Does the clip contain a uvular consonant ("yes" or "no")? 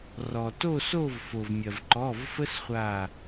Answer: yes